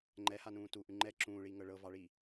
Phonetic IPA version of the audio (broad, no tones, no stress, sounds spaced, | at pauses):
ŋ͡ǃ ɛ h a n ũː t u ʔ ʉ ŋ͡ǃ ɛ ǁ ũː ɭ iː ŋ ɤ ɭ ɤ v ɑ ɭ i